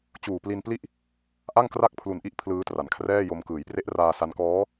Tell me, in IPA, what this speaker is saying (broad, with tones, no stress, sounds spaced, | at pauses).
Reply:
t͡ɕ uː˨˩ p l i˧ n p l i˥˩ ʔ | ʔ a˥˩ ŋ k r a˥˩ k̚ pʰ l u˨˩ n ʔ i˥˩ ʔ pʰ l ɯː˦˥ t r a˩˦ n kʰ r ɛː˥˩ j o˧ m k ɯː˩˦ j p r e˦˥ ʔ r aː˧ s a˦˥ n k ɔː˦˥